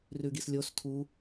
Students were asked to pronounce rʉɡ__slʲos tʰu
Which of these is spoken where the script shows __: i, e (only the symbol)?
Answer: i